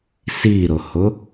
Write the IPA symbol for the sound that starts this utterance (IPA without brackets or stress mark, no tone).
s